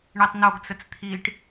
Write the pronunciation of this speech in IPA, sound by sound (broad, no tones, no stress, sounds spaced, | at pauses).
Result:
ɳ i tˤ n o ɡ t͡s ə t͡s t̪ʰ i ʈ